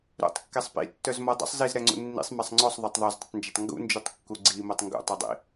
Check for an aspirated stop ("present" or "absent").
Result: absent